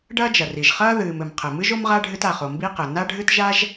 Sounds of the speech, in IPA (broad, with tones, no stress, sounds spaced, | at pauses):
ɖ ɐː˥ d͡ʒ ɐ˩ r i˩ ʒ χ ɐː˥ ð ɨː˩ m ɘ˩ m qʰ ɘ˩ m ɨ˥ ʒ o˥ m ʁ a˥ ɖʱ ɨ˥ t a˩ χ o˩ m b i˥ q ɘ˩ n a˥ ɖʱ ɨ˥ t ʒ a˥ ʒ